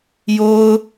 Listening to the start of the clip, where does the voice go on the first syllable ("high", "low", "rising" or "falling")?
high